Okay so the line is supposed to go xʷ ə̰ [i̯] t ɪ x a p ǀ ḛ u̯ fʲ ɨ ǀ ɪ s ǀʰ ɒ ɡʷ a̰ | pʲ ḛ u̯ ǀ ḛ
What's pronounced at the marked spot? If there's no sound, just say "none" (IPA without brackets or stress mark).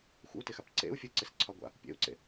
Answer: u̯